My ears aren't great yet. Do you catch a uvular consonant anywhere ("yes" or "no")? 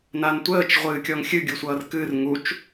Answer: yes